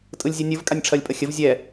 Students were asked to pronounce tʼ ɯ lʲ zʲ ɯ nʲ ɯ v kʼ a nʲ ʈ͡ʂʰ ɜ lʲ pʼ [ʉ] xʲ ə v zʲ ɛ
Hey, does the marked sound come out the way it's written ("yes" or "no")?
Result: no